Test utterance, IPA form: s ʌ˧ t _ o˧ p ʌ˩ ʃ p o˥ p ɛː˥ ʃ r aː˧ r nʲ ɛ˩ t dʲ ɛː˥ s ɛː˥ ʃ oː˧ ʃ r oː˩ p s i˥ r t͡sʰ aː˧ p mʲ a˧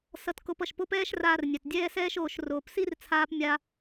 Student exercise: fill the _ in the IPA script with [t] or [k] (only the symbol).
k